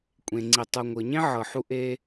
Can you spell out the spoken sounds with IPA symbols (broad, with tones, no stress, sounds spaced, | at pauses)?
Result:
kʷʼ ẽ˩ ŋ͡ǀ i˩ tˤ u˩ ŋʷ ɤ˩ ɲ ẽ˥ ʕ ɤ˩ ħ u˧ ʔ e˧